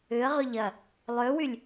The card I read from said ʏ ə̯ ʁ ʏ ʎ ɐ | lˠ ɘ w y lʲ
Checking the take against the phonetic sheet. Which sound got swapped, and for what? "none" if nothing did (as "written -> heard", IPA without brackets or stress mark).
ɘ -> ø